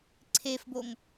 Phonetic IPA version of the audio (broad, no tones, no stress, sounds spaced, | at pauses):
ǀʰ e f b o ŋ